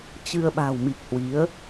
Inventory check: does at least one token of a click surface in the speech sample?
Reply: no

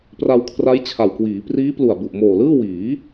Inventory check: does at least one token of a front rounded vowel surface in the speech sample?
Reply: no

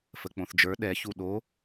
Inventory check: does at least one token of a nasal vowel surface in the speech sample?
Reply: yes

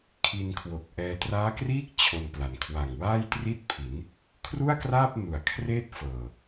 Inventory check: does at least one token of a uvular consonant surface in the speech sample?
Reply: no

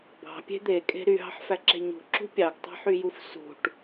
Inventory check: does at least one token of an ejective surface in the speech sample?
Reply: yes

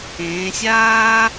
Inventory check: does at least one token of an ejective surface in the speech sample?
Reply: no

